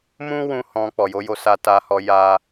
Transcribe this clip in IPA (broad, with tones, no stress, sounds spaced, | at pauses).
m ũ˦ w ũ˧ h ɔ̃˧ k͡p ɔ˨ j o˧ j o˧ s a˧ t a˧ h ɔ˧ j a˦